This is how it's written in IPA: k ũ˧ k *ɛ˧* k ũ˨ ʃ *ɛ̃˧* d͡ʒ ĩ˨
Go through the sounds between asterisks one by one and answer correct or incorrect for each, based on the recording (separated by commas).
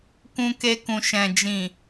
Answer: incorrect, incorrect